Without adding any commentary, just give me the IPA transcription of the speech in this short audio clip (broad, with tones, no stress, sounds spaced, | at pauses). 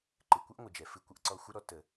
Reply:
ǃ ɨ˨ kʷ ɨ˦ ʔ ŋʷ ɨ˨ d͡ʒ ɛ˨ f ɨ˦ kʷ ə˦ ʔ ǀ ɔ˦ xʷ ɨ˦ ɾ ɔ˦ t ə˦